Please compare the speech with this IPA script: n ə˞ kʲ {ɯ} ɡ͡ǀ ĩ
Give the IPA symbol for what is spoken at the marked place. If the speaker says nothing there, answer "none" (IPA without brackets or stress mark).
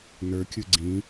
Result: ɯ